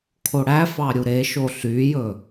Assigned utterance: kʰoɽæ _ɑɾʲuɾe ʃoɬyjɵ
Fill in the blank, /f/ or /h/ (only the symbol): f